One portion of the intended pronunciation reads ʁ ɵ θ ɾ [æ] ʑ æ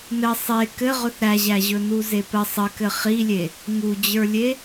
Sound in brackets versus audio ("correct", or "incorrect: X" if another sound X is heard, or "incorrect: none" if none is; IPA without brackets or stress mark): correct